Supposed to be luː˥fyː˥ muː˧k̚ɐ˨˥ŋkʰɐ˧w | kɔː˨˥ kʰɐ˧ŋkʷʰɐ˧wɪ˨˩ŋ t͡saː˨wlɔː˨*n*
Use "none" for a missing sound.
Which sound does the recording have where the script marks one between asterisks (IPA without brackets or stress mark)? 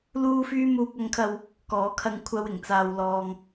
ŋ